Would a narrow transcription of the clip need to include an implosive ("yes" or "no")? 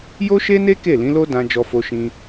no